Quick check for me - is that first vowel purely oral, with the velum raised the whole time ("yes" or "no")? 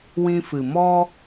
no